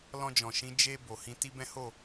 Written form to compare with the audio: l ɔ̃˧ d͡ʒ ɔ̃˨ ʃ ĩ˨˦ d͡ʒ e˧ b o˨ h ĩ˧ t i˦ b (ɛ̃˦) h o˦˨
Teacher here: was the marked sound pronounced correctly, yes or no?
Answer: yes